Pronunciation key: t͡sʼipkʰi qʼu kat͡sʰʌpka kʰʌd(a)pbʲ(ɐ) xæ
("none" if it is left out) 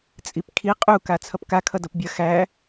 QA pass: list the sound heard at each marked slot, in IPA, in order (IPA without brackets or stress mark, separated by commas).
ʌ, ɐ